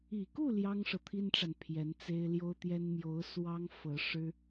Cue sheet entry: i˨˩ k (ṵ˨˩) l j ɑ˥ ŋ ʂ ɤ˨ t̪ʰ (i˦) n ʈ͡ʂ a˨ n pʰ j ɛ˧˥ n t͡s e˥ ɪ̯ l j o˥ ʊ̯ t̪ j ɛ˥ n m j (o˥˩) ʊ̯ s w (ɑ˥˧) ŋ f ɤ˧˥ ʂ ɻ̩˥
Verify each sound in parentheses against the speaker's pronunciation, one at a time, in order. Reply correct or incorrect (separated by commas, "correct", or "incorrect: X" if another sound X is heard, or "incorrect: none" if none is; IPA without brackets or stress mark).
incorrect: u˥˩, incorrect: i˥, incorrect: o˧˥, incorrect: ɑ˥